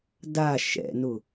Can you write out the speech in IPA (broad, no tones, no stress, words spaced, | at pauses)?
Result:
da ʃɛ̰nʊ